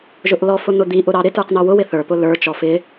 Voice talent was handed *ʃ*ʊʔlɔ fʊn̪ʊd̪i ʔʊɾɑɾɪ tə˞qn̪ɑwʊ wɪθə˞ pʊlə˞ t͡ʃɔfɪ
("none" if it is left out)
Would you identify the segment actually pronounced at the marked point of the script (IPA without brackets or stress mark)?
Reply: ʒ